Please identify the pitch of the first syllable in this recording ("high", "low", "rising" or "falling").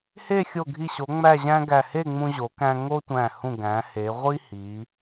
falling